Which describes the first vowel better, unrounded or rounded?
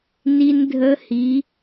unrounded